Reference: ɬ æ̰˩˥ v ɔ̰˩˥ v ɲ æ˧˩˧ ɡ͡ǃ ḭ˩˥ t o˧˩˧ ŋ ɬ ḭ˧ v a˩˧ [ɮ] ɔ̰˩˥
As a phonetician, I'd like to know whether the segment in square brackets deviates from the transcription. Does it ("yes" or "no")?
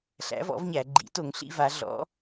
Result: no